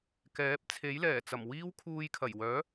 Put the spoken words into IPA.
kɛː˨˥p̚t͡sʰe˨˥jlɛː˨˩t͡sɐ˨˩m wiː˥wkʰuː˧j kʰɐ˨˩jwœː˨˥

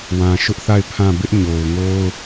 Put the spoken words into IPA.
wã˨ʃʊ˦ʔθa˦˨ɪ̯ pʰã˦˨ bɪ˦ʔɲo˨ʊ̯ŋo˦ʊ̯

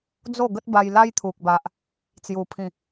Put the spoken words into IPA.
d͡zo˥˧ɡə˦t̚ba˧j la˦jt̪ʰu˨k̚ba˨ʔ | t͡sju˨˩pʰĩ˨˩

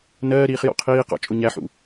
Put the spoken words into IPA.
nɜːɾiːχ jɔ̰qʰiːqɑ̰ t͡ʃʼʊɲæħṵ

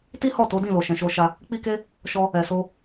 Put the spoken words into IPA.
ti˦hɔ˦˨ to˨˦dĩ˦˨lo˨ ʃɛ̃˨ʃo˧ʃa˧ | k͡pi˦ke˦ | ʃɔ˧ | ɛ˨so˧

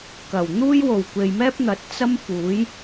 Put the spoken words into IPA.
kɐ˨˩wn̪uː˥j wo˨˩wkʷe˨jmɛː˥p̚n̪ɐ˨˥t̚ t͡sɐ˥mfuː˨˥j

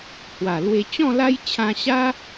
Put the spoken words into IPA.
hwa˨˩lwe˧ t͡ɕɔ̃˥˧la˦jt͡ɕʰã˧ɕa˦

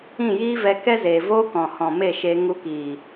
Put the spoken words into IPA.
ĩ˦˨jiː˦vɛ˧ kɛ˦zeː˨voː˦ kɔ̃˨hɔ̃˨me˦˨ ʃeː˧ ŋu˧kiː˨

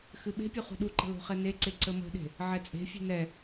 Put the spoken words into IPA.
xɨɓe̤pʲu χṳɗuǃə̤ lo̤χɛneǀe ǀəmə̤ɗe̤ | ʕɛt͡sʼe̤fʲe̤ nɛ

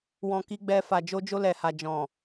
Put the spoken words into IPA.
wɔ̃˧ki˧ɡ͡bɛ˧ fa˨d͡ʒo˧d͡ʒo˧ lɛ˨ha˨ d͡ʒɔ̃˨

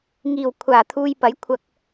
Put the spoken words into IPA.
ŋiː˨˩wkʷʰaː˨˩ t̪ʰuː˧jpɐ˨˥jkʷʰɐ˧k̚

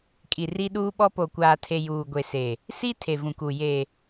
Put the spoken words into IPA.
kʼi˨ri˦ɗuː˦ɓɔ˦ po˨kʷaː˨tʰe˨ juː˨ɡʷe˨se˨ | si˦ tʰe˨vũ˨ku˨ je˨

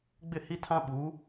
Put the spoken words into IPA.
ɡ͡bɪ˦˨hi˦tʰã˦ ɓu˨˦

